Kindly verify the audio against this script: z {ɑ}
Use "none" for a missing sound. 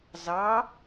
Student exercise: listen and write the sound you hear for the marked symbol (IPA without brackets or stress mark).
ɑ